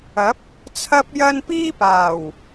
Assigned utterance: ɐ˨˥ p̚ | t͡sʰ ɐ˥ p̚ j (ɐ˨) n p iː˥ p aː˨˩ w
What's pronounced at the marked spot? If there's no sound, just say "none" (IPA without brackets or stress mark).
ɐ˥